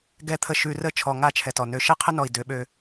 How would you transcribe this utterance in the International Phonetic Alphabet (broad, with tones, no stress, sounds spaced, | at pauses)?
ɡ ɛ˨ t̪ʰ ə˨ ʃ ʉ˨ r ə˦˨ t͡ʃʰ ɔ˨ ŋ a˦˨ t͡ʃʰ ɛ˨ t ɔ˨ n ø˨ ʃ ɛ˦ qʰ ə˦ n ɔ˨ i̯ d ø˨˦ ɓ ø˦